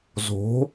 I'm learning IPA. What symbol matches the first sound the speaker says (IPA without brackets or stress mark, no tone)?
z